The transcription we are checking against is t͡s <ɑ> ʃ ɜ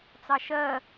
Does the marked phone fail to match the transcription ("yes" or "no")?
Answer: no